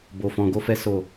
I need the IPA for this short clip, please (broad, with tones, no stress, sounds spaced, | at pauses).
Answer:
b o˧ f ɔ̃˧ ɡ o˦ f ɛ˦ s o˦˨